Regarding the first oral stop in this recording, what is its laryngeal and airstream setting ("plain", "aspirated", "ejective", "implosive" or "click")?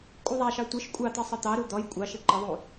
ejective